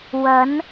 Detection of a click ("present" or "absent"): absent